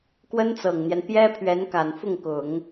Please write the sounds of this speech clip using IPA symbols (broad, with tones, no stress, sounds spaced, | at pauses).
k w ə˥ n t͡s ɤ˨˩ ŋ n̪ j ɛ˦ n p j ɛ˥ pʰ ɥ ɛ˧˥ n k a˨˩ n f ʊ˥˩ ŋ k ʊ˨˩˦ ŋ